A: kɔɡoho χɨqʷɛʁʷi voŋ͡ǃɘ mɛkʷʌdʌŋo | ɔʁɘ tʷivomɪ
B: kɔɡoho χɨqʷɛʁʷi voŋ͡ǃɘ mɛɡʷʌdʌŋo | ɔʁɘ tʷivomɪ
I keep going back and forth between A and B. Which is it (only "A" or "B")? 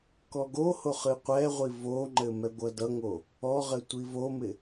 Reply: B